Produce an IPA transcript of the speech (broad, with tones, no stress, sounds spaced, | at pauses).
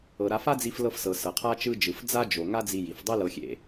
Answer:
ɤ˩ ɾ a˧ f a˥ d͡z i˧ f l ɤ˧ f s ɤ˩ s ɤ˩ qʰ a˥ t͡ʃ ɯ˧ d͡ʒ ɯ˩ f d͡z a˥ d͡ʒ o˩ ŋ a˥ d͡z i˧ j i˩ f dˤ i˥ l ɤ˧ xʲ ḛ˧